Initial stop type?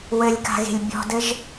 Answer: plain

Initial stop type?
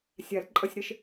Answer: click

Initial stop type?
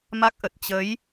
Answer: plain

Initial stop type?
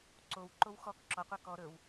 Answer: click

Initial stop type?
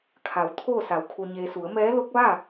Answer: aspirated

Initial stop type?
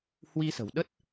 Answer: implosive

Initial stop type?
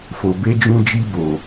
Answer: plain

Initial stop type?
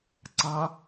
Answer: click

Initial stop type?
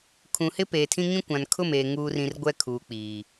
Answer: aspirated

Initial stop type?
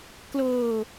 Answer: plain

